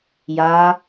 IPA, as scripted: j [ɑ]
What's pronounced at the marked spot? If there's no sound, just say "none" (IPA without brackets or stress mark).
a